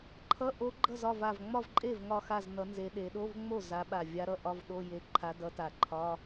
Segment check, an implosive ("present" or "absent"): present